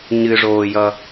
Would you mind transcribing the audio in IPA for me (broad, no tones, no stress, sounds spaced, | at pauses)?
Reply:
ɲ ɨ ʐ oː j ʌ